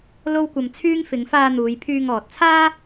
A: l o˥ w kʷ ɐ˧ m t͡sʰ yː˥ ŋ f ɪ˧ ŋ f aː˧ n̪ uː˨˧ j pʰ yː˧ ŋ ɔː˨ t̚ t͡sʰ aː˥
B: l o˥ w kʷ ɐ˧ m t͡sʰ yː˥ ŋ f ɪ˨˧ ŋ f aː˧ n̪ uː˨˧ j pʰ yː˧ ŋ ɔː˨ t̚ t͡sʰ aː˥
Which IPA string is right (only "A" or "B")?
B